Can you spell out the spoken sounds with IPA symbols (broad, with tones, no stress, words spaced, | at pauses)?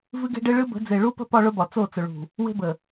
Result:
vɨ˦ɡe̤˦ɖe˦ ɭɨ˦bə̤˨˦ d͡ze˨ɭu˦pə̤˦ pɒ˦ɭʊ˦bɒ˨ t͡so˦˨t͡sʊ˨ɭṳ˨ | we̤˦bə˨